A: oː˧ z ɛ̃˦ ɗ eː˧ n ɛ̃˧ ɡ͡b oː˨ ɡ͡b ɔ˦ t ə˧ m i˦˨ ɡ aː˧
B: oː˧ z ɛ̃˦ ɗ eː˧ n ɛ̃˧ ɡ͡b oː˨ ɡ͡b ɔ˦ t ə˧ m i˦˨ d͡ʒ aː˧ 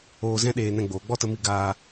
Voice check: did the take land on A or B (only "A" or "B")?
A